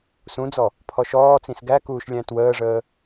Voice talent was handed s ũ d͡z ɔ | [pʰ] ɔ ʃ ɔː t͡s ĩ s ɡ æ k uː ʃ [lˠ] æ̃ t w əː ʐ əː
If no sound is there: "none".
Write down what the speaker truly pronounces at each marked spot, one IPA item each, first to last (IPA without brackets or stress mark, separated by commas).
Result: pʰ, lʲ